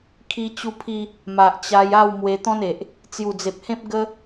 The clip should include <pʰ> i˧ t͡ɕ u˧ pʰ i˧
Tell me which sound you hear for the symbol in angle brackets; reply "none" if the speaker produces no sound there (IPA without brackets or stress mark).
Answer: kʰ